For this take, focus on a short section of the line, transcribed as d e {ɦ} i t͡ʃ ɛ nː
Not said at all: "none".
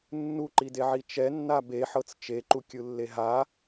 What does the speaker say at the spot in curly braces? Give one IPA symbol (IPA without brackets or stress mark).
ʕ